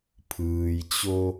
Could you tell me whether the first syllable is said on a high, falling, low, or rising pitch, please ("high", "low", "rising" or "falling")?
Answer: low